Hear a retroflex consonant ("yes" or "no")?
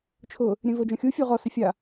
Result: no